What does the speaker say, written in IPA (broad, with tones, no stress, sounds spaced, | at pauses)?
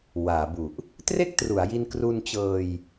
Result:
w aː˩˦ b u˨˩ ʔ | t r e˥˩ k̚ t r u˩˦ a̯ j i˧ n k r u˧ n t͡ɕ ɤː˧ j